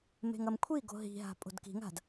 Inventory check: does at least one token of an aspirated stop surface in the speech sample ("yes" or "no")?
yes